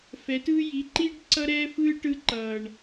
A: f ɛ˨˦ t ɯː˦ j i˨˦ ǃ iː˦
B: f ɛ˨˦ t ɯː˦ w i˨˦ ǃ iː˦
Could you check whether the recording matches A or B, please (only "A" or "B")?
A